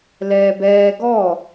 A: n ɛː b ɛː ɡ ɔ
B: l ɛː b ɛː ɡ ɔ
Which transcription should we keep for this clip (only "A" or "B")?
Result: B